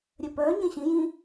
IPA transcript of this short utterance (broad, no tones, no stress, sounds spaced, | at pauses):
ɾʲ œ p œː ɲ ẽ ɕ ĩ j ĩ